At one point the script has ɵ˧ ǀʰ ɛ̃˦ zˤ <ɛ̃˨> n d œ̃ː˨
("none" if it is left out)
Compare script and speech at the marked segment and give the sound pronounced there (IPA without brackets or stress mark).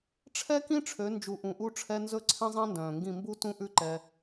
ɛ̃˦